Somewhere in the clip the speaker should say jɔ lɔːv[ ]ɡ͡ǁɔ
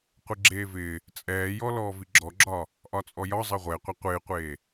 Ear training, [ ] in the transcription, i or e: i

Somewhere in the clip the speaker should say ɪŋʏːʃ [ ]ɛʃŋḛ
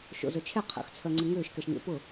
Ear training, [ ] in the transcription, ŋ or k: k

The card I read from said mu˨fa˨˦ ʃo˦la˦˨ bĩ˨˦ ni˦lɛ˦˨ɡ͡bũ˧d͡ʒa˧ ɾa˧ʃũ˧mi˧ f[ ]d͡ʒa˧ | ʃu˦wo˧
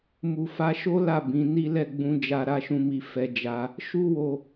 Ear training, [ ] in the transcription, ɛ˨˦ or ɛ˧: ɛ˧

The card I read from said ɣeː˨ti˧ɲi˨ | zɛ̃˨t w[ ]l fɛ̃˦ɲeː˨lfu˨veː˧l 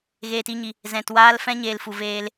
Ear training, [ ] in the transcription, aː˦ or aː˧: aː˧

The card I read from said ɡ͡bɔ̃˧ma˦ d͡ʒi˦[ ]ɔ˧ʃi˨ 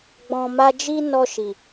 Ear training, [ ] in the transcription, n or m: n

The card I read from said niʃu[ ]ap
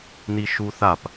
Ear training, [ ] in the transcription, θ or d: θ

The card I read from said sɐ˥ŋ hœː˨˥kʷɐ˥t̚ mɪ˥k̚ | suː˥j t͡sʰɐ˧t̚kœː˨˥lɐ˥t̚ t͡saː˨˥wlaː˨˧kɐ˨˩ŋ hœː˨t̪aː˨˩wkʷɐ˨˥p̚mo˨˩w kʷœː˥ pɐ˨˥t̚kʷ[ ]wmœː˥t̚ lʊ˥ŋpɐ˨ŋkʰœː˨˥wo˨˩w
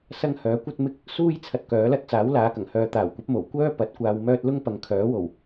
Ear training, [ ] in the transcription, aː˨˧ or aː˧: aː˧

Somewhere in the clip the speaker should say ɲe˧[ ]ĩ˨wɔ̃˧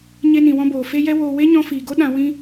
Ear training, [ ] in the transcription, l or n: n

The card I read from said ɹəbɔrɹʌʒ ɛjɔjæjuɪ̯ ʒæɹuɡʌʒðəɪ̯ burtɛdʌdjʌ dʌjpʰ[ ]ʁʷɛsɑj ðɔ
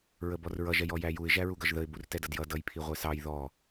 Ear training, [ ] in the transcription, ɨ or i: i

